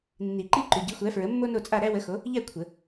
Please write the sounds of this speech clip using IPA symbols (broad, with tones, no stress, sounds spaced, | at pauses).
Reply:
nː i˨˩˦ ǃ i˥˨ ǃ ʉ˨ ɟ i˨˥ xʷ æ˨˥ f ɹ ə˨˥ mː o˥ n o˥˨ t͡sʼ a˥˨ ɾ æ˥ w ə˨˥ x o˨˥ | ʎ æ˥˨ kʷʰ ə˨˩˦